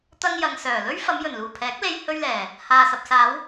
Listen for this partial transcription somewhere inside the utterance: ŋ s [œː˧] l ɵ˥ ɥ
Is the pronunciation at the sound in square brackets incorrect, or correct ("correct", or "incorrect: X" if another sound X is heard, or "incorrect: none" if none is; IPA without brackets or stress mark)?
incorrect: œː˨˩